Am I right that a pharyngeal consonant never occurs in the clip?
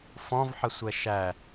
no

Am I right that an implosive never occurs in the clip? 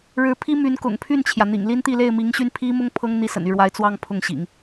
yes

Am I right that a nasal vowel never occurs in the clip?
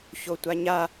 yes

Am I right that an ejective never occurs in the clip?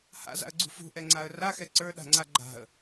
yes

